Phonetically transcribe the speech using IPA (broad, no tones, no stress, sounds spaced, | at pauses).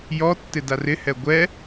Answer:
j ɔ tː ɪ d a r ɪ h ɛ ɡʷ ɛ